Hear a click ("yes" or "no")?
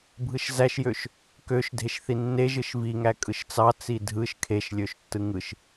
no